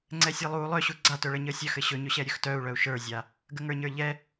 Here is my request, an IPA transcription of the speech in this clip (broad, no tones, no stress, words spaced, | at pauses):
ŋ͡ǀɛsʲalˠu lˠœɕu ɡ͡ǀatɵɭəɲə sʲœxɘ ɕɵɲɵɕɛ ɾʲɵxtœu̯ɭœu̯ ʃə˞zʲa | ɡəŋə˞ɲə˞ʎɛ